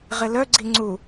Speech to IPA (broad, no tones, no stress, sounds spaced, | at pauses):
ʁ ɪ l œ ɡ͡ǀ i ŋ͡ǀ u